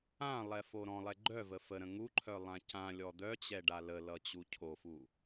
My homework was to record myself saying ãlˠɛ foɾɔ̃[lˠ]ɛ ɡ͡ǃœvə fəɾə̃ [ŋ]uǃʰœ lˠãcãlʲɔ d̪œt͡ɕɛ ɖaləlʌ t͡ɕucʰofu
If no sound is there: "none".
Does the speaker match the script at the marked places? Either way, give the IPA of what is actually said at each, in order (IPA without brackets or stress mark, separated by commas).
lˠ, ŋ